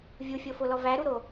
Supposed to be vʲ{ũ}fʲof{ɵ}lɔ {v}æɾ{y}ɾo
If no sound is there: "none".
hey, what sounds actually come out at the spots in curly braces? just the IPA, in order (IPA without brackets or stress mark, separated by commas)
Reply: u, o, v, u